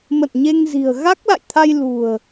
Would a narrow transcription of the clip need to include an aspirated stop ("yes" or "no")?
yes